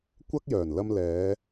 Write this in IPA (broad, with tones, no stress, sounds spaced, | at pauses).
kʷ ɐ˥ k̚ j œː˨˩ n l ɐ˧ m l ɛː˨˧